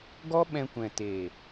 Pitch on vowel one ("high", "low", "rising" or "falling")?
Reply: high